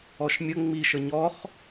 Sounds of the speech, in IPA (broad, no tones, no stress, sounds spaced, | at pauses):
ɔ ʃ mʲ ə ŋ͡m i ʃ ə ɲ ɔ χ